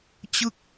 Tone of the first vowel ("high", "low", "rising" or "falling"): falling